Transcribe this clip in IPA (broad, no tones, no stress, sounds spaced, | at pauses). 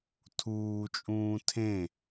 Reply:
tʰ uː t͡ʃʼ ũː tʰ ẽ